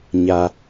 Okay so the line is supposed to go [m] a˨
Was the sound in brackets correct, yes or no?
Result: no